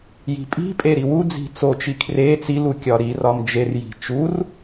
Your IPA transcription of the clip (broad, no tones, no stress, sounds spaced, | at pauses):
j i̤ pʼ i̤ pʼ e ɾ i w u d͡z i̤ t͡s o t͡ʃ i kʰ r e t͡s i l u kʲ ɒ ɾ i r ɒ m d͡ʒ e r j i̤ t͡ʃ u r